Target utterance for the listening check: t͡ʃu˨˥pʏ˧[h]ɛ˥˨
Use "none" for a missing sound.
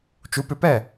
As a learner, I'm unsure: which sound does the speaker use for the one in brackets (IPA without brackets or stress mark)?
p